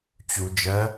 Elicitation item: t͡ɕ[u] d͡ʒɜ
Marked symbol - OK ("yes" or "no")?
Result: yes